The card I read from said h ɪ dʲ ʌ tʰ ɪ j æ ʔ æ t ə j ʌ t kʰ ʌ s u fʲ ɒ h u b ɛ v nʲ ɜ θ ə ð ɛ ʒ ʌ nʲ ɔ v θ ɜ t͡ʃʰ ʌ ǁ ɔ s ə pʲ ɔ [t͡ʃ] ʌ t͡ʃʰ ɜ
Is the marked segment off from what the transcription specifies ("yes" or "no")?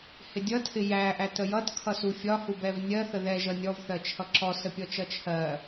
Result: no